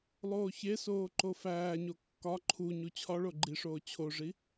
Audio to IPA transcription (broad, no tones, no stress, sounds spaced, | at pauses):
lˠ oː ç e s oː ǃ o f æː ɲ o kː ɒ ǃʰ u ɲ u t͡ɕʰ ɒ ɭ o ɡ͡ǃ i ʂ oː t͡ɕʰ o ʐ i